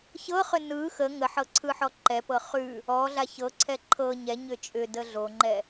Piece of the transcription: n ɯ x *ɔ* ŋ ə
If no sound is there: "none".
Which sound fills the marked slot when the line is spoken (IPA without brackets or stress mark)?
ə